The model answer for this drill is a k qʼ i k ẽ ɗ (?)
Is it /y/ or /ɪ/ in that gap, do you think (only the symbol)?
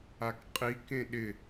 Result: ɪ